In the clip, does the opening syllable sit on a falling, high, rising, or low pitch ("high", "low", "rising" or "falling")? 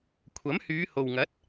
rising